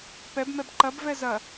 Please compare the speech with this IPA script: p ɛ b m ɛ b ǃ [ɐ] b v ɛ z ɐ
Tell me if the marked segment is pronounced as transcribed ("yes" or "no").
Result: yes